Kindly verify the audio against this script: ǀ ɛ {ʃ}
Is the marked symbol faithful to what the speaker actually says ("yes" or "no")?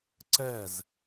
no